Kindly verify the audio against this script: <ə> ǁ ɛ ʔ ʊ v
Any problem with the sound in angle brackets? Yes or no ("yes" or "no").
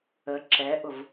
no